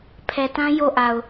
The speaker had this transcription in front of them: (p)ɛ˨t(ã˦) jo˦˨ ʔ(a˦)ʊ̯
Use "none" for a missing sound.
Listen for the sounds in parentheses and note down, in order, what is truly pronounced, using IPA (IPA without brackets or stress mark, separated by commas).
pʰ, ã˦, a˨